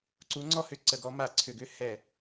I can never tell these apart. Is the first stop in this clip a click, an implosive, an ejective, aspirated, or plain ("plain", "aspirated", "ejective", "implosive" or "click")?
click